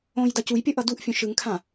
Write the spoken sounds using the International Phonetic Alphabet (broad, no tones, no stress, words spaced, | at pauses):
õj dacujpʲʌ ʔʌduʔfʲõ ʃɯŋkʰã